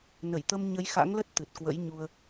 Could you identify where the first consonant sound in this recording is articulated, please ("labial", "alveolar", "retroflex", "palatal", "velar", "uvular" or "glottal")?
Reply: alveolar